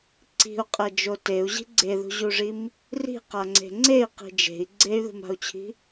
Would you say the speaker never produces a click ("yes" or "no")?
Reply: no